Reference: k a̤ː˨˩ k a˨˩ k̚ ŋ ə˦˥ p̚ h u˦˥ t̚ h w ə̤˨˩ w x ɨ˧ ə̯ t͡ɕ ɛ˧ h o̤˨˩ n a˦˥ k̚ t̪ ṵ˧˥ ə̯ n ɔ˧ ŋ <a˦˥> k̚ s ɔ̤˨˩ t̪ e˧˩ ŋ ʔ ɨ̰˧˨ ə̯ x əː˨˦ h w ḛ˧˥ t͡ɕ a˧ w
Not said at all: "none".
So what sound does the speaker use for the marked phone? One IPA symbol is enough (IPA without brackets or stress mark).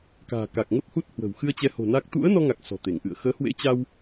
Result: a˨˩